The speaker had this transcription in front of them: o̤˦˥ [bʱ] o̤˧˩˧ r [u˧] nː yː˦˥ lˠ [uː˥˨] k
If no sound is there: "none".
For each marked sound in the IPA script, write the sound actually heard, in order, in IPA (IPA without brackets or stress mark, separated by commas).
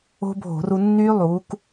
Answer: bʱ, u˧, uː˨˥